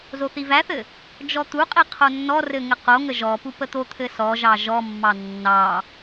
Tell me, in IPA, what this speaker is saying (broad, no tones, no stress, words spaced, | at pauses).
zoθivæθɘ | d͡ʒɔt̪uqʼi qʰonːɔrɘ ŋɘqoŋə ʒɔpu pət̪ot̪ʰɘ sɔʒɑ ʒɔmːɑ nːɑ